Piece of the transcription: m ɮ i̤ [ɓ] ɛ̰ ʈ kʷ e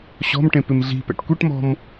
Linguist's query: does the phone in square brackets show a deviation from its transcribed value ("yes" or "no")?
yes